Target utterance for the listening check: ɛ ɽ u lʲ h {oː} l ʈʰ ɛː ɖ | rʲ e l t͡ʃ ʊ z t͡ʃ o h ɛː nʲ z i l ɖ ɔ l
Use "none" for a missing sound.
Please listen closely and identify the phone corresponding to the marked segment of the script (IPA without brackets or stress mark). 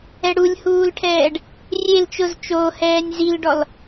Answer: uː